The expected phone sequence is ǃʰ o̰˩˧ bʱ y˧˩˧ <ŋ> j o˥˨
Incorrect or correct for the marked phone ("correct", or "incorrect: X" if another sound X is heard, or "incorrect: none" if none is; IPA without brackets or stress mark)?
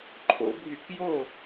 incorrect: k